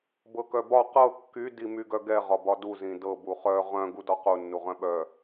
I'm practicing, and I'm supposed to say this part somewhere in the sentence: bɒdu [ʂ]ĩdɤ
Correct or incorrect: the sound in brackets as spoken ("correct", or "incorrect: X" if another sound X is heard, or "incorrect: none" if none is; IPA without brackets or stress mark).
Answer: incorrect: z